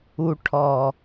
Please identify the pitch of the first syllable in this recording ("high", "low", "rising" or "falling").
low